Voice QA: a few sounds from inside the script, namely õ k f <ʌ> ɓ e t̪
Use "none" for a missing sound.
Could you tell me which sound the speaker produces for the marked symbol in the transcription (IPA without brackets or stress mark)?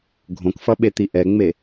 ʌ